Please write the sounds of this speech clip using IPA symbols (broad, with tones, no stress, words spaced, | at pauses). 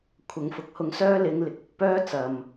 kʷʰɐ˨ŋfʊ˨˥k̚hʊ˧ŋsœː˥ lɪ˨˧ŋlɪ˨k̚ ʊ˨k̚ pœː˥t͡sɐ˨m